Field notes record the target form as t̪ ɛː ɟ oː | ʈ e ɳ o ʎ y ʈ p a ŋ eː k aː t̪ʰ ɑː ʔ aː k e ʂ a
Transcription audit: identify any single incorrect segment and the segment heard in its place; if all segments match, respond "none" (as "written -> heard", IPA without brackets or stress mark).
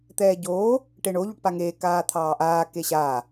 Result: ʂ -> ɕ